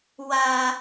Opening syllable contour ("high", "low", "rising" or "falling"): low